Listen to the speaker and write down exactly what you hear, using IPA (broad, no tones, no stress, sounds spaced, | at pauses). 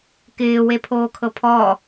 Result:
k ɪː w e pʰ oː kʰ ɤ pʰ ɔ